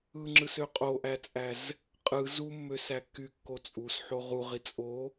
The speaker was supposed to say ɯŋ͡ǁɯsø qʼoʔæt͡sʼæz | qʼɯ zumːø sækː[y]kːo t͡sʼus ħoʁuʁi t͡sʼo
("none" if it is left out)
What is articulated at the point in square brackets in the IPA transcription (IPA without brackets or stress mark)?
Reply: y